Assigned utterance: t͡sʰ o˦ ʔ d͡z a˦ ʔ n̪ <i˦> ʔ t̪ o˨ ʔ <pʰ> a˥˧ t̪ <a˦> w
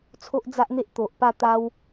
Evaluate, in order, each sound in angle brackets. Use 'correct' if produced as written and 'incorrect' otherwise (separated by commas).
incorrect, incorrect, correct